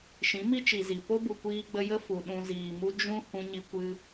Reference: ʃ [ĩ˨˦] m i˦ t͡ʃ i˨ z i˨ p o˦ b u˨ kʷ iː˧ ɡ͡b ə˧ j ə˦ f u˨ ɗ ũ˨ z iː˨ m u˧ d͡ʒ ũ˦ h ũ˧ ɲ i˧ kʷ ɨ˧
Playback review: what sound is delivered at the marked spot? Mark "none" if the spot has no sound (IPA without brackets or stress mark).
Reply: ĩ˨˦